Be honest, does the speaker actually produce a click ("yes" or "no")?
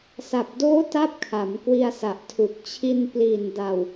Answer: no